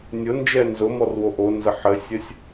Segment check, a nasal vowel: absent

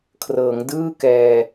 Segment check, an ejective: absent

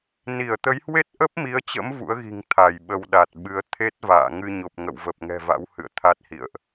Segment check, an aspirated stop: present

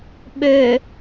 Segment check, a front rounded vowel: present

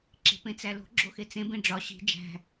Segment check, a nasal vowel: present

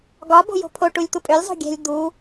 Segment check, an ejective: present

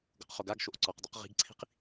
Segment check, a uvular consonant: present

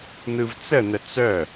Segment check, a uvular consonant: absent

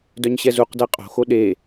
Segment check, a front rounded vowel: present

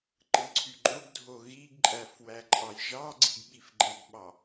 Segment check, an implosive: present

